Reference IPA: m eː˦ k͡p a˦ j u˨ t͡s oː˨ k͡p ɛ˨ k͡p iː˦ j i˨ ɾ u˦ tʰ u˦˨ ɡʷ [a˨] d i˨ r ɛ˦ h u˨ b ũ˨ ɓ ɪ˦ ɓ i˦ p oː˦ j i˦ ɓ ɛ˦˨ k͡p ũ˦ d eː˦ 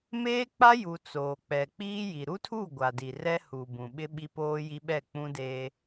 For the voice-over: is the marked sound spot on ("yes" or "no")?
yes